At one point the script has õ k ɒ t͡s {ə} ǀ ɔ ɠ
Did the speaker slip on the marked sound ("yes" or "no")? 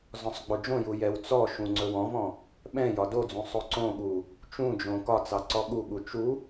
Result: yes